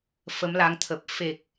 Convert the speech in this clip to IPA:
f ə˨˦ m l a˨˦ ŋ t̪ʰ ə˨˩ p̚ f e˨˩ k̚

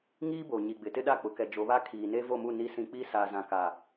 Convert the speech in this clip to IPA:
ŋ iː˦ b o˨ ɲ i˨ ɡ͡b ɪ˨ t ɪ˦ ɗ a˦˨ k͡p ʊ˨ k ɛ˨ d͡ʒ o˨˦ β a˦ kʰ iː˨ n e˦ v o˦˨ m u˦˨ n i˨˦ s ĩ˨ k͡p i˦ s aː˨ z ã˨ k a˨

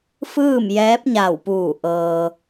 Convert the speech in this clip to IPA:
f ɯː˥˨ m j ɛː˧˥ p̚ ɲ a˧˩ w p uː˧˩ ʔ ɤː˧

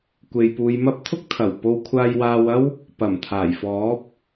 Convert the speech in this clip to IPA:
kʷ e˨ j p uː˨˧ j m ɐ˥ p̚ t̪ʰ ʊ˥ k̚ t̪ʰ ɐ˨˩ w p o˧ w kʷʰ aː˧ j w aː˧ w ɐ˥ w | p ɐ˨˩ m t̪ʰ aː˨˩ j f ɔː˨˥ p̚

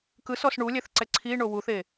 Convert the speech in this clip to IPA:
k ɯ s ɔ s ɳ u lʲ ɛ θ ǀ ɛ ǀʰ i ɳ o w u θ e

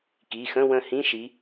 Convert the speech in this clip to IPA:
k i˩˧˩ x ə̃˧˥˧ w ə̃˦˨ h ĩ˧˥˧ ʃ i˨˦

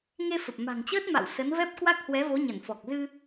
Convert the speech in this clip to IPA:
ŋ e˧ f ə˨˩ p̚ m a̤˨˩ ŋ t͡ɕ əː˦˥ t̚ m a̰˧˨ w s ə˨˦ n v ɛ˦˥ p̚ k w a˦˥ k̚ h w ɛ˨˦ v o˨˦ ɲ ə˧˩ n f ɔ˨˩ k̚ z ɨ˧

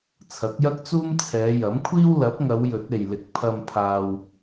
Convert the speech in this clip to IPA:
t͡sʰ ɐ˨˥ k̚ j ɐ˥ k̚ t͡s uː˥ m t͡sʰ ɛː˨˧ j ɐ˨˥ m kʷʰ iː˥ w l ɐ˨˥ p̚ ŋ ɐ˨˧ w j ɵ˨˥ t̚ e˨ j l ɪ˨ k̚ pʰ ɐ˧ m pʰ aː˧ w

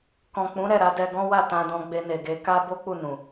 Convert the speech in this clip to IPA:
k ɔ̃˨ k͡p ũ˨˦ ɾ ɛ˦˨ ɾ a˨˦ d ɛ˧ ɡ ɔ̃˦ w a˦˨ t ã˧ d ɔ̃˧ ɡ͡b e˧ n e˨ ɡ e˨˦ k a˦ b o˦ k͡p u˦˨ n ũ˨

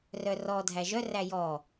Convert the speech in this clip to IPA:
r œ r ɔ dʱ æ ʒ œ r æ j ɔ

